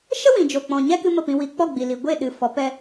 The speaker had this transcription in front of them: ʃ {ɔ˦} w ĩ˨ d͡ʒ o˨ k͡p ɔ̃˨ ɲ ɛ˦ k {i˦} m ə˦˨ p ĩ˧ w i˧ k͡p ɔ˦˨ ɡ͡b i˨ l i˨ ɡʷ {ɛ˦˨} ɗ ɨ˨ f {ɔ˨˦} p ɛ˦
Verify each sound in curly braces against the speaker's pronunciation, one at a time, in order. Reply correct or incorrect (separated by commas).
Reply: incorrect, incorrect, incorrect, correct